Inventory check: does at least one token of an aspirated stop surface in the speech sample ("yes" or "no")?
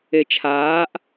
yes